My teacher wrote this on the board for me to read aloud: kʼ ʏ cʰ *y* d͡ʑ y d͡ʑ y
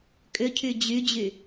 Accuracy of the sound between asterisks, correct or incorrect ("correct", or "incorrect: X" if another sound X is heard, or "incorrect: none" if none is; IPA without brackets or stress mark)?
correct